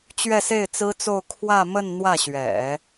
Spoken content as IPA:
t͡ɕ ɥ ɛ˥˧ s e˥˩ ɪ̯ t͡s ɹ̩˥ t͡s o˥˧ ʊ̯ kʰ w ä˥˧ m ə˥˧ n n̪ w ä˥˩ ɕ ɥ ɛ̰˨˩˦

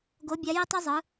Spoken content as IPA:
ɡ o˨˥ bʲ a˨˥ j i˧ tˤ u˧ zˤ ɯ˩˧

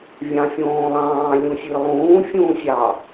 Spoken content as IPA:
vʲ ɑ̃ fʲ õː lˠ ɑ̃ː lʲ ũ sʲ ɨ lˠ ũː fʲ ũː sʲ ɑ

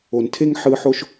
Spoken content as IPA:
o˨ n tʰ e˥ ŋ ħ ɯ˦ ħ o˥ ʃ

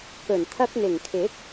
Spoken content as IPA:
k ɵ˨˩ n t̪ʰ ɐ˧ k̚ n̪ ɪ˨˩ ŋ kʰ ɪ˨˥ k̚

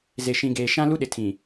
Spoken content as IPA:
z e˨ ʃ ĩ˨ ɡ eː˨ ʃ ã˦ l u˦ ɗ ɪ˨ tʰ ĩ˨

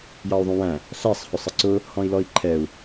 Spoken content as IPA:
j ɑ u̯ ðˤ ũ w æ̃ | ɬ æ sˤ h ʊ sˤ ə ǀ ʊ | h ɔ̃ i̯ l ɔ i̯ ǃʰ ɛ u̯

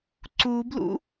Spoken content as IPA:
ǀ u b l ṵ

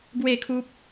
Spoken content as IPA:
ɡ w e˥˧ kʰ u˦ p̚

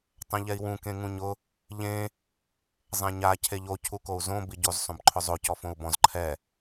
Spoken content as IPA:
tˤ ɛ̃ ʎ ɛ i̯ w ũ k ẽ ŋ ũ ɲ ʊ | ʎ ẽ | zˤ ɛ̃ ɲ a cʰ e ʎ o cʰ u k o u̯ z õ b i ɟ o z sˤ õ b ǃʰ ʊ zˤ o c ɔ f õ u̯ b ɔ̃ z ǃʰ ɛ

